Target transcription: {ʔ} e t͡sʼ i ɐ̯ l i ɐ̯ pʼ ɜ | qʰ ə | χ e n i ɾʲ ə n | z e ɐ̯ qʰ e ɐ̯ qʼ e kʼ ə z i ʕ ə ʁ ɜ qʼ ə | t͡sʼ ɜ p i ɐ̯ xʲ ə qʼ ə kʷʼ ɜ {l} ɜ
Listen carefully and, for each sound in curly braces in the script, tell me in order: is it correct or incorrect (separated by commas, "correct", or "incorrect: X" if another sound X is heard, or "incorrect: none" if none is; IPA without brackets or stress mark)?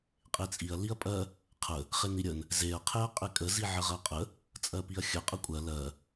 incorrect: qʼ, correct